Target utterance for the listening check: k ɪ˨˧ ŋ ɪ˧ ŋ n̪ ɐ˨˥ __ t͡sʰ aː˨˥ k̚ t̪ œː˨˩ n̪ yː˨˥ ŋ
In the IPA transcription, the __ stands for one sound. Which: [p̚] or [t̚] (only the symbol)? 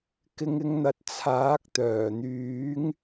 t̚